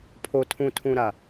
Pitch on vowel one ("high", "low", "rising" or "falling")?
low